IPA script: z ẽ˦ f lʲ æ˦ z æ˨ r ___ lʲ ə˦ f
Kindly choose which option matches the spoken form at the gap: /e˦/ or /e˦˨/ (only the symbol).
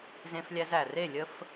e˦˨